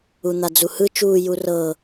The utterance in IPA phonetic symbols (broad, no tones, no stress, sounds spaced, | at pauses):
u n̪ a d͡z u h ɯ t͡ʃ uː j u r ɤ